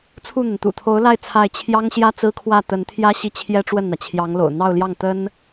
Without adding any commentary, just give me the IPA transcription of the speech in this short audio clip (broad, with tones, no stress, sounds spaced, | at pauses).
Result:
t͡sʰ u˥˩ n̪ ə˩ n t̪ ṵ˨˩ t̪ʰ o˧˥ ʊ̯ l a˥˧ ɪ̯ t͡sʰ a˥˩ ɪ̯ t͡ɕʰ j ɑ˥ ŋ ɕ j ä˥ t͡s ɹ̩˥ kʰ w ä˥˩ t̪ ə˧˥ n t̪ʰ j ä˥ ɕ i˥˩ t͡ɕʰ j ɛ˥ ʈ͡ʂ w ə˥˩ n n̪ ä˩ t͡ɕʰ j ɑ˧˥ ŋ l o̰˨˩ ʊ̯ n̪ ɑ˥˧ ʊ̯ l j ɑ˥˩ ŋ t̪ ə˥ n